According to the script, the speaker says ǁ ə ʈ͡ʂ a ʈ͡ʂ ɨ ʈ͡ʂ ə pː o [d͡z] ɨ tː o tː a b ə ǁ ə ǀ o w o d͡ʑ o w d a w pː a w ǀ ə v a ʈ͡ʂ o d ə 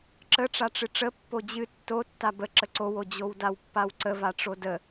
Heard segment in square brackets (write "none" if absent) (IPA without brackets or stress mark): d͡ʑ